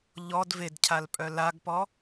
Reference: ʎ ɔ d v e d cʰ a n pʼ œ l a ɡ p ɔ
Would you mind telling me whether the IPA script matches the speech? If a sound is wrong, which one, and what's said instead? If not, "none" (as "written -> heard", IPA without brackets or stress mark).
n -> l